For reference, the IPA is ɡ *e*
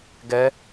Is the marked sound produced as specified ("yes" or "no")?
no